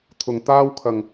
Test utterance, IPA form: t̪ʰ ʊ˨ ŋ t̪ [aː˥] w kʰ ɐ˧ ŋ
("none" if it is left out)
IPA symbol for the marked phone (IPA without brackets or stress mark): aː˥